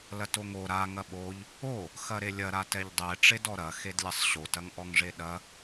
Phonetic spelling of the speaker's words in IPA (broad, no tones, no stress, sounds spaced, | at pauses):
l ɐ t o ŋ o ɾ a ŋ ɐ ɓ o ʎ | o | x ɐ ɾ e lʲ ɐ ɾ a t ɛ ʎ dˤ ɛ ʈ͡ʂ e d ɔ ɾ ɐ x e d lʲ ɐ sˤ ɕ o t ɐ ŋ ʔ ɔ ŋ ʐ e ɗ ɐ